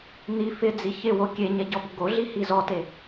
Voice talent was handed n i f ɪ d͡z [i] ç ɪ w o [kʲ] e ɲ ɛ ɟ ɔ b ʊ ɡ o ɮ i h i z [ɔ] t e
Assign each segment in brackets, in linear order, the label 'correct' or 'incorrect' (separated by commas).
correct, correct, correct